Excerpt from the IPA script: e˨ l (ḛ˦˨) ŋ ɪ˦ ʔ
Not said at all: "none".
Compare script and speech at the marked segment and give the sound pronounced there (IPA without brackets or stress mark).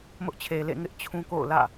ḛ˦˨